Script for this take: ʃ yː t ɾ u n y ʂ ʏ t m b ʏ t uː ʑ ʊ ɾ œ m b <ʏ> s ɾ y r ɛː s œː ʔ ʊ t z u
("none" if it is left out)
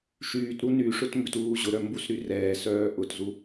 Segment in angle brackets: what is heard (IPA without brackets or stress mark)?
u